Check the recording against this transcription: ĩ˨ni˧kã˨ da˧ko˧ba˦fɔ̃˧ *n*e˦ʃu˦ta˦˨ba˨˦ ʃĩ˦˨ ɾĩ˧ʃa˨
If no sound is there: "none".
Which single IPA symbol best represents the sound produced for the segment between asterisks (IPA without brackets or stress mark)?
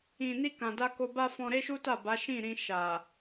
ɾ